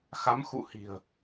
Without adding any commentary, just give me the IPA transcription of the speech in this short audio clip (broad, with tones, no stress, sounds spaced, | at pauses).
x a˨˦ m x ṵ˧˨ h i̤˨˩ ə̯